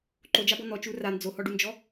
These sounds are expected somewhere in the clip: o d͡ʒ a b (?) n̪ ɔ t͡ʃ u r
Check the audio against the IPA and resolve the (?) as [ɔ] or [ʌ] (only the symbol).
ɔ